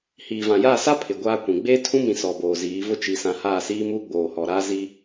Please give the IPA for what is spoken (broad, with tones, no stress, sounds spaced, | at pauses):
h iː˨ v ã˨ j aː˦˨ s a˦ pʰ ɪ˨ ɡʷ aː˦ kʷ ĩ˨ ɡ͡b eː˦ tʰ ũ˦ m ĩ˨ s ɔ˨ b oː˨ z iː˨˦ v ʊ˦ t͡ʃ i˨ s ã˨ h aː˦˨ s iː˦ m uː˦ ɡ͡b oː˨ h ɔ˨ ɾ aː˦ z i˦